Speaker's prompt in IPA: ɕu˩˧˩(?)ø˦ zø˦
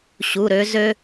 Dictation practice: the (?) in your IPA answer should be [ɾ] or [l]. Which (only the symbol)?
ɾ